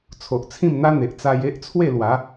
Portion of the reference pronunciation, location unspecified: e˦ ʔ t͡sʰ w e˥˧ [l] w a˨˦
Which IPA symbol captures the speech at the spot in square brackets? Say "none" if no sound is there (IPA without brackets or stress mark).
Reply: l